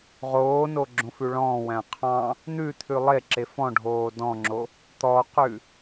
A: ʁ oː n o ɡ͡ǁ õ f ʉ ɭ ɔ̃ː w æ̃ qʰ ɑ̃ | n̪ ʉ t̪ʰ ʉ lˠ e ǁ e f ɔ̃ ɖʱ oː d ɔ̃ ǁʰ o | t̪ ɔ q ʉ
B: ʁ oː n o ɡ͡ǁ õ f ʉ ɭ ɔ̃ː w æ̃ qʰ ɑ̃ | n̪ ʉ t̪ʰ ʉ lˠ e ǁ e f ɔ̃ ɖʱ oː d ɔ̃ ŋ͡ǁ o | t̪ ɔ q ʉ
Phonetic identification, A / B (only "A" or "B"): B